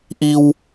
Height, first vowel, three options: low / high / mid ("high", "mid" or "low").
high